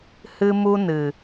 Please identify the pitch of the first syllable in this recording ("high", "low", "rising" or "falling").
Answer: high